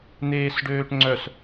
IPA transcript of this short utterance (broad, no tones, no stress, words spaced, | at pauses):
n̪eːsɖøːʈŋ͡ǀœs